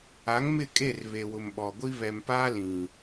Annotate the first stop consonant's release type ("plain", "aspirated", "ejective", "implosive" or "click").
ejective